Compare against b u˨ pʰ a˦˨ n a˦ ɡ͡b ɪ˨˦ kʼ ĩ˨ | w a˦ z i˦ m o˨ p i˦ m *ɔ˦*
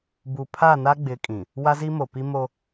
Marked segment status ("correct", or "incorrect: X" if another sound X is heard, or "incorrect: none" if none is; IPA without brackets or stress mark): incorrect: o˦